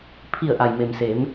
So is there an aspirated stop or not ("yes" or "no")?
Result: yes